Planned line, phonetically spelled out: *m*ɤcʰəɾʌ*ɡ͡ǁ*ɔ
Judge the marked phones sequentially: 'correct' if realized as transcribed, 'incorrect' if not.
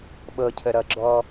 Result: incorrect: ɓ, correct

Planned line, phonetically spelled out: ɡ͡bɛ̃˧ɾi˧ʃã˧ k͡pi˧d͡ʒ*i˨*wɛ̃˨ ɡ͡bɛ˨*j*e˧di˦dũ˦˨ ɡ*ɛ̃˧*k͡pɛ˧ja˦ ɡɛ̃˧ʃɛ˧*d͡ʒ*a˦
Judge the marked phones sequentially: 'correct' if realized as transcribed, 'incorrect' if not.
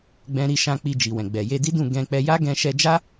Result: correct, correct, correct, correct

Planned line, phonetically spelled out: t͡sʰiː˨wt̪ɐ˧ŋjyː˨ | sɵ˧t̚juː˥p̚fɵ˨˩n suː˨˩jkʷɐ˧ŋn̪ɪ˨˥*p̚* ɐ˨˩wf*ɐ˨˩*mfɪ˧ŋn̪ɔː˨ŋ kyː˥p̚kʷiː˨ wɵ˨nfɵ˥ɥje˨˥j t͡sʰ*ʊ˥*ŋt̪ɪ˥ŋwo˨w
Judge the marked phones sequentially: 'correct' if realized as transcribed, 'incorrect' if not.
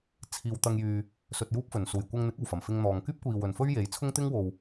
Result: incorrect: k̚, correct, correct

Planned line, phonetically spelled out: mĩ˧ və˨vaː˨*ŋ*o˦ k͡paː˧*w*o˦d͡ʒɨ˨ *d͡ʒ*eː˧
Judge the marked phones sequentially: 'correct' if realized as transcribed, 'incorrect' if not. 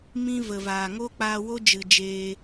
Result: correct, correct, correct

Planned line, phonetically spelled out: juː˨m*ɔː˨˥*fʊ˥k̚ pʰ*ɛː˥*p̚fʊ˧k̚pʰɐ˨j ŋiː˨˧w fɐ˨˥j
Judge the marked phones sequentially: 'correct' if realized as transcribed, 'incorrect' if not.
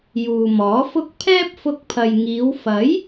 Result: correct, correct

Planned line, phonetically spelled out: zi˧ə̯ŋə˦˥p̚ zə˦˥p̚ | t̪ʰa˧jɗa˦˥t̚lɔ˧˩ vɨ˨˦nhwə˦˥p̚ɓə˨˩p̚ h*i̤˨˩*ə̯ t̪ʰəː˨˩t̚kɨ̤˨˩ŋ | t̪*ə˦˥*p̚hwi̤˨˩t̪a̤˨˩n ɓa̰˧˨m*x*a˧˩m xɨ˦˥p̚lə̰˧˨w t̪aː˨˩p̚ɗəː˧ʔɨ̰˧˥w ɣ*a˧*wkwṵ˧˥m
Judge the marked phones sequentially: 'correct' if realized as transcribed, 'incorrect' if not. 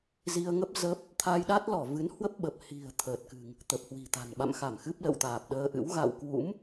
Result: correct, incorrect: ə˨˩, correct, incorrect: a̰˧˨

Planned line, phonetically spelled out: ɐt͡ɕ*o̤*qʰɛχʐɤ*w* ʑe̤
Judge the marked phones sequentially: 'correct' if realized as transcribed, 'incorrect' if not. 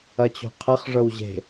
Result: correct, correct

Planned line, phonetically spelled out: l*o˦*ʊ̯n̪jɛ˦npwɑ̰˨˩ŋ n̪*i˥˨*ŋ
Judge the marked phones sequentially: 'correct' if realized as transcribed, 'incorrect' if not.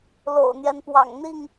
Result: incorrect: o̰˨˩, correct

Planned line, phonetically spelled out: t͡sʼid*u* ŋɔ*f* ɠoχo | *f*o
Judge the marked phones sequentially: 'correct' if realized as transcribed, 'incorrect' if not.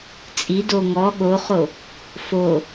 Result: incorrect: o, incorrect: none, correct

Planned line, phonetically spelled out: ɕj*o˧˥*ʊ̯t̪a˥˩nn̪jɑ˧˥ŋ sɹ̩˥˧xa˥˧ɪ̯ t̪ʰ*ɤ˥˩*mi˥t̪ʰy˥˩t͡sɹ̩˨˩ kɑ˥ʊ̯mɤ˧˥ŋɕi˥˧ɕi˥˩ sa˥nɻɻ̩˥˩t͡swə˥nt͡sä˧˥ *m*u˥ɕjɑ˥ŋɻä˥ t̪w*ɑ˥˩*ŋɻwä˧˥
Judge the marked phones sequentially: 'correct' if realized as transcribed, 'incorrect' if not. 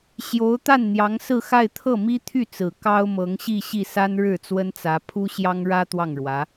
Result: correct, correct, incorrect: pʰ, correct

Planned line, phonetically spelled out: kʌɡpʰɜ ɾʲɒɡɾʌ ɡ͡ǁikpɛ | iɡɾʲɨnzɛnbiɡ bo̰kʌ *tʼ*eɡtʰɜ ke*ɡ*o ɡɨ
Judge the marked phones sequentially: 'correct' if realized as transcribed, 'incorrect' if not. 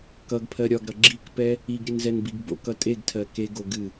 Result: correct, correct

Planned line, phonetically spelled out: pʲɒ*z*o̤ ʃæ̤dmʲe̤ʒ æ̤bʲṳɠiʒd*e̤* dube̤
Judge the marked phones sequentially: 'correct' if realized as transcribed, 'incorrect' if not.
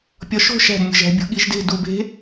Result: incorrect: ʃ, correct

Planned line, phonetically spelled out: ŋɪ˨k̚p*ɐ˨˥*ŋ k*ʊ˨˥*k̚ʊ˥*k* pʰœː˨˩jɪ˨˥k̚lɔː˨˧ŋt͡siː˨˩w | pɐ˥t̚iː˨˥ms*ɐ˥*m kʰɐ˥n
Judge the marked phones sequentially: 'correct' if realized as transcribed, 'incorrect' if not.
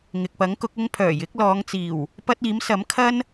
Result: correct, correct, incorrect: ŋ, incorrect: ɐ˨˥

